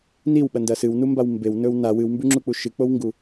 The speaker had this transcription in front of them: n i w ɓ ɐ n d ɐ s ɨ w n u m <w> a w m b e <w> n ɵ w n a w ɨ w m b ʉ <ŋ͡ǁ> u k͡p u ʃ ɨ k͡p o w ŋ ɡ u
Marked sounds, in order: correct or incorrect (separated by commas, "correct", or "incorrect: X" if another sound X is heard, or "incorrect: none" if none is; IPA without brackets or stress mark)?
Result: incorrect: b, correct, correct